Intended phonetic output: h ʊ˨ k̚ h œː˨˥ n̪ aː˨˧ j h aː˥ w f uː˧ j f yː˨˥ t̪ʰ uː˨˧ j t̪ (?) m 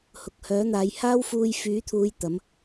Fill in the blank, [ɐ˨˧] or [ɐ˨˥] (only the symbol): ɐ˨˥